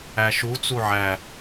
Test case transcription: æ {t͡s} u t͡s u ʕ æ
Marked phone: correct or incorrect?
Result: incorrect